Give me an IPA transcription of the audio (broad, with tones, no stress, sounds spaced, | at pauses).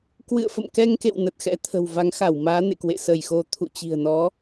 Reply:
k w ɨ̰˧˨ ə̯ f ə̰˧˨ m k ɛ˧ ŋ k ḛ˧˨ w n ə˨˩ t̚ x ɛ̰˧˥ t̪ʰ ə̤˨˩ w v a˨˦ ŋ x a˧˩ w m aː˨˦ n ḛ˧˨ k w ḛ˧˨ s ə˧˩ j x o˧ t̪ʰ ṵ˧˨ t͡ɕ i̤˨˩ ə̯ n ɔ˨˦